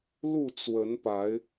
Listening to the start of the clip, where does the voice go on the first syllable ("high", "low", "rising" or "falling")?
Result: falling